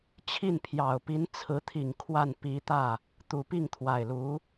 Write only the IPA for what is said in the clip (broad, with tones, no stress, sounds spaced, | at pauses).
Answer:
t͡ɕʰ i˥˩ n pʰ j ɑ˨˩ ʊ̯ p i˧˥ n t͡sʰ ɹ̩˧˥ t̪ʰ i˨˩ ŋ kʰ w a˥˩ n p i˧˥ t̪ ä˥˩ | t̪ u˧˥ p i˥˩ ŋ t̪ʰ w a˨˩ ɪ̯ l u˧˥